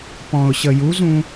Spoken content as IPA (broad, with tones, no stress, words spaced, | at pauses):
pɔ̃˨ʊ̯ ɕə˨ju˨˦zũ˧